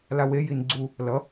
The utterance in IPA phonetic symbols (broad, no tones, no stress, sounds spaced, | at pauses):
l a w e j i n ɡ͡ǀ u | l ʌ